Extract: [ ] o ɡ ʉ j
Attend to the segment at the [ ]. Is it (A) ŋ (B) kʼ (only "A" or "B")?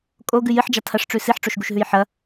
B